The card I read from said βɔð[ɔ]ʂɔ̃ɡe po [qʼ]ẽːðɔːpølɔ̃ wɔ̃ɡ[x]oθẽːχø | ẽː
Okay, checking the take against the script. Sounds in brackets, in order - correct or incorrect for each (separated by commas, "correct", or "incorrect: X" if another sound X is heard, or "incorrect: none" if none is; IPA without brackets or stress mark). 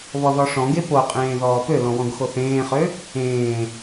correct, correct, correct